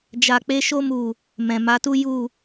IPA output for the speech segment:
d͡ʒ a˨ k͡p e˧ ʃ o˧ m u˨ | m ɛ̃˨ m a˨˦ t u˦ j u˦˨

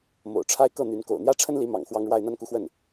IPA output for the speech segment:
m o̰˨˩ ʊ̯ ʈ͡ʂʰ a˥ ɪ̯ k ɤ˥˩ n̪ y˧˥ n k o̰˨˩ ʊ̯ n̪ j ä˥˩ ʈ͡ʂʰ ə˥ n l i˧˥ m ɑ̰˨˩ ŋ x w ɑ˥ ŋ ɻ w a˥˧ ɪ̯ n̪ a˥˧ n k u˥˧ x w ə˥˩ n

